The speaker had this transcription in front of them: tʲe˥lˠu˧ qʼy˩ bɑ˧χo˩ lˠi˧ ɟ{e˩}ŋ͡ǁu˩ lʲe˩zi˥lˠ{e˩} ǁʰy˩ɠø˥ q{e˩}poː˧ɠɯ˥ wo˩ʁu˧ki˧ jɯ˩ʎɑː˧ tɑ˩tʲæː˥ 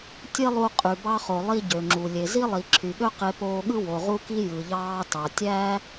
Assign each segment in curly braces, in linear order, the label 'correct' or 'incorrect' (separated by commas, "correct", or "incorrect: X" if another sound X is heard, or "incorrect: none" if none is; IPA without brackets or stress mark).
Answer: incorrect: ø˩, incorrect: i˩, incorrect: e˧